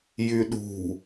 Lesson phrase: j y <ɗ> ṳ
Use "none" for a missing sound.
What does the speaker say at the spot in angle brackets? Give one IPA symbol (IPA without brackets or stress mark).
ɗ